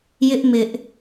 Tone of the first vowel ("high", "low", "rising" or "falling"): high